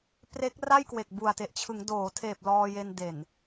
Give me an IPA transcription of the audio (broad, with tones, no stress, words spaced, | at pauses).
pre˦˥k̚ ra˥˩jkwe˨˩k̚bu˨˩a̯te˨˩ʔ t͡ɕʰɯ˩˦ŋdoː˩˦tʰeː˨˩p̚ lɔː˧je˧n de˨˩n